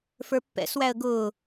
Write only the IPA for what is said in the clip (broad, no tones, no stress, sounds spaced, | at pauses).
f ə˞ pː ɛ̰ s w æ ə̯ ɡ ʊː